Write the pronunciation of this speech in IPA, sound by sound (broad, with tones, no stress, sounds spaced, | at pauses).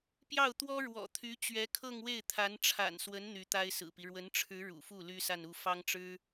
p j ɑ˥˩ ʊ̯ t̪ w ɔ˥ ɻ w ɔ̰˨˩ t̪ʰ y˧˥ t͡ɕ ɥ ɛ˧˥ kʰ ɤ˥˧ ŋ w e˥˩ ɪ̯ t̪ʰ a˧˥ n ʈ͡ʂʰ a̰˨˩ n s w ə˧˥ n n̪ y˧˥ t̪ a˥ ɪ̯ s ɹ̩˨˩ p i˦ ɻ w ə˧˥ n ʈ͡ʂʰ ɻ̩˧˥ ɻ ṵ˨˩ f u˥˩ l y˥ s a˥˧ n u˥˩ f ɑ˥ ŋ ʈ͡ʂ ɻ̩˥